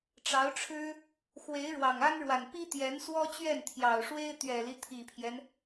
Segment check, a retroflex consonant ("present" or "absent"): present